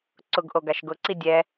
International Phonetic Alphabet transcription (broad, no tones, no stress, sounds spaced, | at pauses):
ǀ ʊ ɡ ʔ o ɡ a ʃ ɡ ʊ ǀ i dʲ ɛ